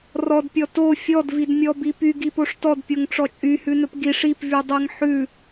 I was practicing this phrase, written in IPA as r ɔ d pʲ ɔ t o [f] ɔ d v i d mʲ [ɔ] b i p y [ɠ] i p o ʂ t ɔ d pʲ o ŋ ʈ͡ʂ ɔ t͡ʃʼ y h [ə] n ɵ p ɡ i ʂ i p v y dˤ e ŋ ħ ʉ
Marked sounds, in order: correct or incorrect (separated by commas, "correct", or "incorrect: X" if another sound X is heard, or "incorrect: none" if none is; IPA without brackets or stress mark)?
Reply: incorrect: fʲ, correct, incorrect: ɡ, incorrect: ʉ